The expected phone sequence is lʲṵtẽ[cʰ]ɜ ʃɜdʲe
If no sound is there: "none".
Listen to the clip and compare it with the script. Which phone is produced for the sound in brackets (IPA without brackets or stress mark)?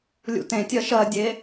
tʲ